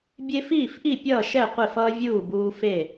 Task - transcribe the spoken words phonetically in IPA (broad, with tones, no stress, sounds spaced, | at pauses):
bʲ e˦ f iː˥˨ f ʔ i˥˨ pʲ ʌː˥˨ ʃ ɛ˥˨ qʷ e˥˨ f ʌː˦ vʲ uː˥˨ b uː˦ f e˥˨